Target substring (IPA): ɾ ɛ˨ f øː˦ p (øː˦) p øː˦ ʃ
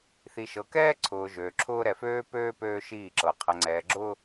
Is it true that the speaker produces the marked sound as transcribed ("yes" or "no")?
yes